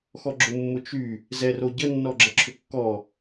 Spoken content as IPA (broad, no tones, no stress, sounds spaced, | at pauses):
x ɔ ɡ͡ǁ ʊ mː ʊ t͡ʃ y | z ɛ r o ɟ ə nː ɔ ɡ͡ǁ ə ǁʰ ʏ kː ɔ